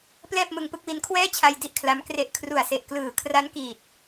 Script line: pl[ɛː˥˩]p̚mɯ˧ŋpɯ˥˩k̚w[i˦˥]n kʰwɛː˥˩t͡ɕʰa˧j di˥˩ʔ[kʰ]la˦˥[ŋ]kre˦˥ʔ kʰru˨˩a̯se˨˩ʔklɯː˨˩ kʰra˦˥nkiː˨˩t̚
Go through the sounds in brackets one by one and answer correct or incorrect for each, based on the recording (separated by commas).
correct, correct, correct, incorrect